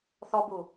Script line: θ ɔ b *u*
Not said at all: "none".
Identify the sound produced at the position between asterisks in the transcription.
u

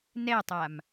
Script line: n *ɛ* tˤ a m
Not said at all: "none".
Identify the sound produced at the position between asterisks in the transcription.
ɛ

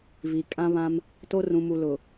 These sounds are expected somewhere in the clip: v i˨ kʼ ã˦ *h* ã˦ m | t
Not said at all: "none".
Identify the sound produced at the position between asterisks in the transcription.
β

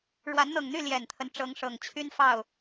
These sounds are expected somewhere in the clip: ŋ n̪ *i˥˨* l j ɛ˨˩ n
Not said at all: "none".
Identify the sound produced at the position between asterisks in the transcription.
y˥˨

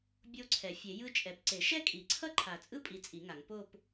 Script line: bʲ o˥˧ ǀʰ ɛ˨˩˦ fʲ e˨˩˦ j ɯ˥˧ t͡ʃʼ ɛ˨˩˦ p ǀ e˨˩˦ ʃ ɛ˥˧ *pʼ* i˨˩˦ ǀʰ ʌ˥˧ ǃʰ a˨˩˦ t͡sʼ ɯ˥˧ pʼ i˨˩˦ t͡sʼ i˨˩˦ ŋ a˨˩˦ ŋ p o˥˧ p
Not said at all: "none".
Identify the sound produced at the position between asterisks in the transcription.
kʼ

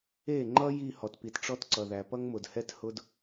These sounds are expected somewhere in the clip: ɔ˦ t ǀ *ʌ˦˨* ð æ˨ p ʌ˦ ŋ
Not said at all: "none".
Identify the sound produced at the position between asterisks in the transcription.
ʌ˨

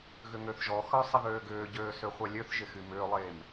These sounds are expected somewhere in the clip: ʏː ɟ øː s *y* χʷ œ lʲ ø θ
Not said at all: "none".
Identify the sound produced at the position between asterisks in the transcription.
ø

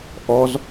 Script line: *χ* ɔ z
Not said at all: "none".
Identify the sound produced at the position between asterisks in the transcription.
ʔ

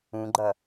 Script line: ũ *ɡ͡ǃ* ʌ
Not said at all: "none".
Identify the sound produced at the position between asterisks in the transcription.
ɡ͡ǃ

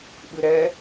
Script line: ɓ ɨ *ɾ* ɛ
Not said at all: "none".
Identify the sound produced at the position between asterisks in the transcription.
ɾ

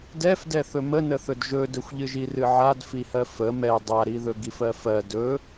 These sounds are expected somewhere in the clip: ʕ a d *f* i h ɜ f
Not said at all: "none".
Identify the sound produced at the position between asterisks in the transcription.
f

